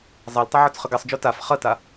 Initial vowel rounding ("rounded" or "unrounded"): unrounded